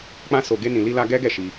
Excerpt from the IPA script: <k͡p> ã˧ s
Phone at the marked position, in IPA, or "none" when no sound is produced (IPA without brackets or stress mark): k͡p